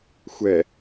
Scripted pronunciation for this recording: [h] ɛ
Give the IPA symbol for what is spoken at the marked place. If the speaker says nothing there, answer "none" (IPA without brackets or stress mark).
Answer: xʷ